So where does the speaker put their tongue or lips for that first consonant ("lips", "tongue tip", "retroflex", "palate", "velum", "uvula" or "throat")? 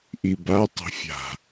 throat